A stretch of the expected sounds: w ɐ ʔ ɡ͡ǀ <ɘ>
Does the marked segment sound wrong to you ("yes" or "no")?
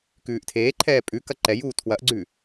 yes